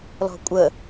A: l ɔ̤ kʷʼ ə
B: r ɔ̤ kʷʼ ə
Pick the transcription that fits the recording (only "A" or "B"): A